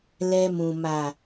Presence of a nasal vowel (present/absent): present